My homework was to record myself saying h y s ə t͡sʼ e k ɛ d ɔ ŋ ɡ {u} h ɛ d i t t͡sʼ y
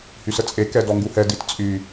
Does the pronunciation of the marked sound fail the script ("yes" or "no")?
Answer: no